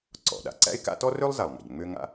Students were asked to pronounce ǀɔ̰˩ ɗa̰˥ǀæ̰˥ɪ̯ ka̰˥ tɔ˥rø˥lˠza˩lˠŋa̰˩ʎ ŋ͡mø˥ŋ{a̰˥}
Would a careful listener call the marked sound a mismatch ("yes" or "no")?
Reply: no